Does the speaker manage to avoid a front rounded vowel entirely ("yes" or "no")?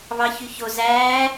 no